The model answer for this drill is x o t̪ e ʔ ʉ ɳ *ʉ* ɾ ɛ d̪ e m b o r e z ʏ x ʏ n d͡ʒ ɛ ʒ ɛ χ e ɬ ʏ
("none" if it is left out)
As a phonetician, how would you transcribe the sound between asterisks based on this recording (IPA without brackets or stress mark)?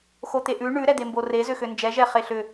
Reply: ʉ